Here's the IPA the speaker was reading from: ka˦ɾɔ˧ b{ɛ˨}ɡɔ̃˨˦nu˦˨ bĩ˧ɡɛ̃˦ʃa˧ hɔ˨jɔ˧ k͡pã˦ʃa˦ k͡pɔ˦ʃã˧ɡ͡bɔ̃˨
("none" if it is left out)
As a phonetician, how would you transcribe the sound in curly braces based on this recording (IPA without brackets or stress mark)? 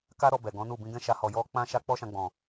ɛ˨